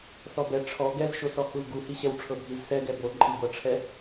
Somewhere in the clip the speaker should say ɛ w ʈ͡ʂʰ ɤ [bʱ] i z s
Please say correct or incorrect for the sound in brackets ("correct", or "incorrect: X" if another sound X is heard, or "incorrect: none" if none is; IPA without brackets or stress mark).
correct